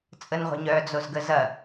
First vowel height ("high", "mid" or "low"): mid